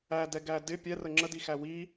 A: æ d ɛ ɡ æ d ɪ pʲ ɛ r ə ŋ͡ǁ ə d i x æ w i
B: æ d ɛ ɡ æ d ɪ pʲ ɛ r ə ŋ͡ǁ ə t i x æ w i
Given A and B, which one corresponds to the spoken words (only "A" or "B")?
A